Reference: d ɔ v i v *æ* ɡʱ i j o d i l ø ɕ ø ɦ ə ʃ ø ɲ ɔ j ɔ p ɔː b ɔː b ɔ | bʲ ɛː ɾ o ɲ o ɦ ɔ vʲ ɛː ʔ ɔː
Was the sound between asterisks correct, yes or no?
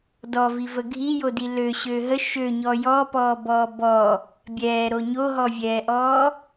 no